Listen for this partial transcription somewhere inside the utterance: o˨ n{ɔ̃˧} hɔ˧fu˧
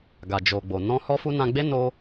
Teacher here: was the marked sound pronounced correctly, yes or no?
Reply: yes